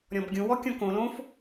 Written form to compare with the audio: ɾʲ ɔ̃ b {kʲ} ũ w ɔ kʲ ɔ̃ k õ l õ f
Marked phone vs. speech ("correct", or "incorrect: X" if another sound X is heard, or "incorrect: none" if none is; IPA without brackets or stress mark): incorrect: ɡʲ